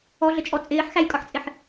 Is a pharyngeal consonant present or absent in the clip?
present